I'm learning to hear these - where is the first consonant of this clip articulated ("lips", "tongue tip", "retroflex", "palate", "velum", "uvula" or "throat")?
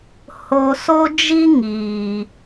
throat